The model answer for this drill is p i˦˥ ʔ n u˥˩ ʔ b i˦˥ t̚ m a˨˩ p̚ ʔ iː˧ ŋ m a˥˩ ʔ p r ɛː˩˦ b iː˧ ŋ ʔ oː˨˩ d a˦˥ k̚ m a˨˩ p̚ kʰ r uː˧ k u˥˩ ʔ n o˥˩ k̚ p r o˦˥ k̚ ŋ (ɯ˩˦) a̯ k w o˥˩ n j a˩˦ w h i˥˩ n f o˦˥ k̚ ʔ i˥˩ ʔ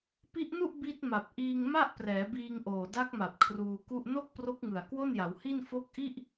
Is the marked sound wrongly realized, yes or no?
yes